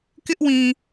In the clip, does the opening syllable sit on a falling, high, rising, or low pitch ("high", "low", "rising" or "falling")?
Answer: high